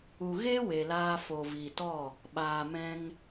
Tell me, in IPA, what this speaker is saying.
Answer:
u˨ ɣ e˦ w e˨ l aː˧ f o˨ v i˨ t ɔ˦˨ | ɓ aː˨ m ɛ̃˧ ŋ

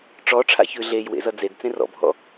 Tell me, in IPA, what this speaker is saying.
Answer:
ʈ͡ʂ ɔ ʈ͡ʂʰ a̰ ç ʉ ɮ e j w ḛ z ʌ d͡z e d t͡s ẽ r ɔ̰ bʱ ɔ̰

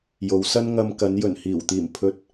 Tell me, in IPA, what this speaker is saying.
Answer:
j o˨˧ w s ɐ˥ n ŋ ɐ˧ m k ɐ˨˧ n j ɵ˨˩ n h iː˨˩ w t̪ iː˨˩ m pʰ ɵ˧ t̚

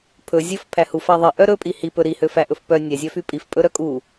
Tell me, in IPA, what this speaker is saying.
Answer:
pʰ ɵ zʲ ɵ f pʰ æ h u f æ ðˤ i ʔ œ ɾ ɵ pʼ i h i p ɵ ɾ i h ø f æ ʔ ɵ f p œ nʲ æ zʲ œ f y pʼ i f pʼ ɵ ɾ œ kʼ u

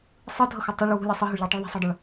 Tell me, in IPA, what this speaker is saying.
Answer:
sˤ ɯ dʱ ʌ x u tˤ ʌ ɭ w ṳ lʲ a sˤ ɯ ɦ o ɭ ʎ ʌ ɭ tˤ u ɭ ðˤ i̤ sˤ o ɭ dˤ ɛ ɭ

